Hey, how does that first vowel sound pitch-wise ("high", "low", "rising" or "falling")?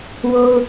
high